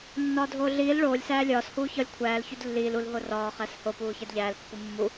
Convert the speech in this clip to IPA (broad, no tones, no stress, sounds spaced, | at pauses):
nː ɒː dʱ oː ɮ iː l ɭ oː lʲ s æː lʲ ɒː s h uː ç ɒ lʲ kʷʰ æː l ç u d lː iː l u l ɦ o r ɒː χ æ s h o p uː ç æ d ʎ æː l pː u mː u